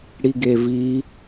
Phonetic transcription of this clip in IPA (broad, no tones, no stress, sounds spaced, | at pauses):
ɽ i ɡ e v i